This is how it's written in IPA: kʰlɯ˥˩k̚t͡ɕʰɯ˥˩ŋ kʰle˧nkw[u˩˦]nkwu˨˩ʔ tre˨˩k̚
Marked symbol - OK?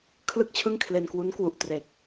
no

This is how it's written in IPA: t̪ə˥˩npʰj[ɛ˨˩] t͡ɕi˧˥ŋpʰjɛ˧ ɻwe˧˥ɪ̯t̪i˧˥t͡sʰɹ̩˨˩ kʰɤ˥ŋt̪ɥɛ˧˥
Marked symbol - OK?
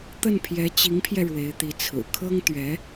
no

